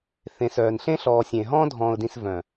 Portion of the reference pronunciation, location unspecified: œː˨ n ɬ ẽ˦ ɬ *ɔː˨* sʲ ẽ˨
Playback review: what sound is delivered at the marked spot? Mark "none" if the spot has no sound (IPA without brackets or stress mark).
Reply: ɔː˨